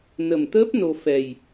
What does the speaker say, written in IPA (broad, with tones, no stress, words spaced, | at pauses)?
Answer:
nə˨˩mt̪əː˦˥p̚ no˧ fɛ˨˩j